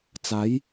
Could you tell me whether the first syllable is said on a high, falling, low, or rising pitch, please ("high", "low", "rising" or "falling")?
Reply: rising